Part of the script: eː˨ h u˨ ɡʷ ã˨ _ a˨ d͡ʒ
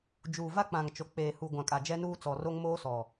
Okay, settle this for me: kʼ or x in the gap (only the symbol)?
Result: kʼ